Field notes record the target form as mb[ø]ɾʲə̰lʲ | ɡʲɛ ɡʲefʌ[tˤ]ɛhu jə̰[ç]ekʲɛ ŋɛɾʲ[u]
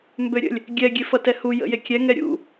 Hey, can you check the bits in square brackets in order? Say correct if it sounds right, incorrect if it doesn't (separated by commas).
correct, incorrect, incorrect, incorrect